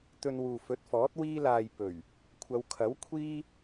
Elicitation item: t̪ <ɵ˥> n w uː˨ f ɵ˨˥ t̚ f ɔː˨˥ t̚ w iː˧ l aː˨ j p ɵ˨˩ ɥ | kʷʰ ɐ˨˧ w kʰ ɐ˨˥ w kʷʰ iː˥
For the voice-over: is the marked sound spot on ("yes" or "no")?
no